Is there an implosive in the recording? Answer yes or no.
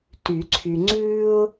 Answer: no